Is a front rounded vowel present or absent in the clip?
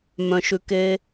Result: present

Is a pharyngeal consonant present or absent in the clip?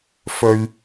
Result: absent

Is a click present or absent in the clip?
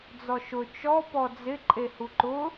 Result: present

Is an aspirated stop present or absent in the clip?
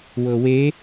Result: absent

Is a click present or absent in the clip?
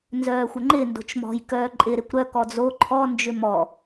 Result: present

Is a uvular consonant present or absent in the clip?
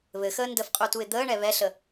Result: present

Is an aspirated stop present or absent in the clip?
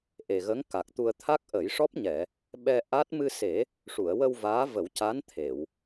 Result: present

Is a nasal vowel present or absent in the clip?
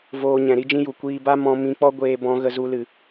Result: present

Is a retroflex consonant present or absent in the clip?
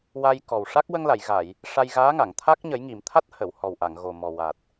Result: present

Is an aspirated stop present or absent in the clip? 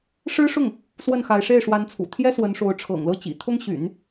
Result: present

